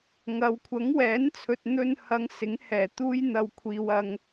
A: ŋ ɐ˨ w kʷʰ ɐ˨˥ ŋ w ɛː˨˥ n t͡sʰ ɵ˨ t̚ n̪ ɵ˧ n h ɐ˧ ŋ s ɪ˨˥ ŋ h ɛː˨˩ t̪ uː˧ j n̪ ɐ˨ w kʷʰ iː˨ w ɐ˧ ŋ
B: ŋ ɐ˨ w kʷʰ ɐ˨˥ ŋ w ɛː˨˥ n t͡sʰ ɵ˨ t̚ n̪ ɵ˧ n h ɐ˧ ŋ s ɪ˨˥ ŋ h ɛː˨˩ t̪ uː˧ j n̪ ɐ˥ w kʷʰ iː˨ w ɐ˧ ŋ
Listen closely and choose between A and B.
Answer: A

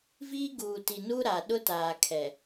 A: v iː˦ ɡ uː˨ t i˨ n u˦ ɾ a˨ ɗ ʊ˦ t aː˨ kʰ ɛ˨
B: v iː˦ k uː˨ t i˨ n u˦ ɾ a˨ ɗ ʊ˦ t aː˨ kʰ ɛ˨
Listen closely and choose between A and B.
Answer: A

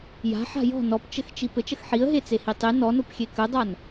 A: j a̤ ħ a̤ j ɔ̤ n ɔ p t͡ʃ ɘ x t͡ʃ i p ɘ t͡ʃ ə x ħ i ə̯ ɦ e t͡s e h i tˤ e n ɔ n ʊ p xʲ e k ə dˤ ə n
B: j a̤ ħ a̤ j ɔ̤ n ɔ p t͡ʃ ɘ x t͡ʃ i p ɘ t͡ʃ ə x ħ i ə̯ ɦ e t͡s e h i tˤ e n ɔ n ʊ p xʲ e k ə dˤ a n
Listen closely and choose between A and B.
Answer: B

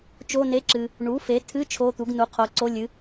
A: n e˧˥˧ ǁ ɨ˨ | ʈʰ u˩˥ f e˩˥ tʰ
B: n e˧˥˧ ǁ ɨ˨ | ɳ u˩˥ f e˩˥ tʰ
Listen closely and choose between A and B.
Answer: B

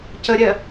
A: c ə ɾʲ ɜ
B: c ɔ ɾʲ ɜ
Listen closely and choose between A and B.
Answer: A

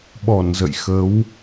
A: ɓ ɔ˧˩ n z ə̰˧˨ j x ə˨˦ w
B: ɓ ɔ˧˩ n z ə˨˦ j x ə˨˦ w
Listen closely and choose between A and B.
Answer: A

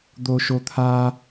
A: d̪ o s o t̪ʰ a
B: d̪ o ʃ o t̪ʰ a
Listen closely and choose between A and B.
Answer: B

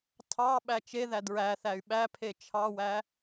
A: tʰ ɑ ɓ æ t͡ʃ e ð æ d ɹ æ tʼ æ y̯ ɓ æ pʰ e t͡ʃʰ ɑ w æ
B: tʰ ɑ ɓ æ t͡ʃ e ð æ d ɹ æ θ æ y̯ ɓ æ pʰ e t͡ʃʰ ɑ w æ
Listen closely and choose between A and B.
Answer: B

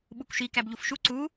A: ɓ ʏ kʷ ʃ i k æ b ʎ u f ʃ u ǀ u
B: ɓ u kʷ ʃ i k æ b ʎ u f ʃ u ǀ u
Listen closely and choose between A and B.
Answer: B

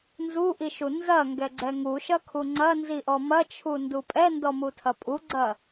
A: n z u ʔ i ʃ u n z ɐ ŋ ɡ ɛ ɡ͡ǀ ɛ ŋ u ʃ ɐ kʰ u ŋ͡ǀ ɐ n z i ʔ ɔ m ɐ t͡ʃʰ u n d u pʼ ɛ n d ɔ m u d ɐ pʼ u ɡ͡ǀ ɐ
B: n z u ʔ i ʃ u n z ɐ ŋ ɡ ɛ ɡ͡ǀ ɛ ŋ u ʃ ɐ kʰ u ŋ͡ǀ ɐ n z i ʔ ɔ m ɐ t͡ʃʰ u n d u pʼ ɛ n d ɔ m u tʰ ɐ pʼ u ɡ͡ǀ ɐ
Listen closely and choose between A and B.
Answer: B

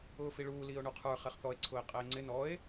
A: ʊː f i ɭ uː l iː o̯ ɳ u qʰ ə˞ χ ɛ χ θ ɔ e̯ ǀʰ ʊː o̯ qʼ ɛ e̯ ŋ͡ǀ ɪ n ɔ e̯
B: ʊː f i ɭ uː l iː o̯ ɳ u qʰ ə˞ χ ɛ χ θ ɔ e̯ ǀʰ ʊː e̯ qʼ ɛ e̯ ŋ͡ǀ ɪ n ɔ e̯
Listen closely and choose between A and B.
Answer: B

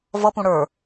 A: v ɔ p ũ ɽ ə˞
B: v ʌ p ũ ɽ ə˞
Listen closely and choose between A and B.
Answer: B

